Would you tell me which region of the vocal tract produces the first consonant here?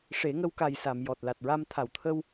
retroflex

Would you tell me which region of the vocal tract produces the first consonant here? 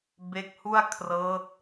lips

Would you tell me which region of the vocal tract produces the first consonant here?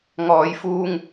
velum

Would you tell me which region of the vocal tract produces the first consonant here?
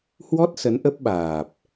throat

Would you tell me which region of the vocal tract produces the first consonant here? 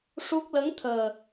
retroflex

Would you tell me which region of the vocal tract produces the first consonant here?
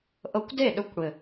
throat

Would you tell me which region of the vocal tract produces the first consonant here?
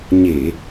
palate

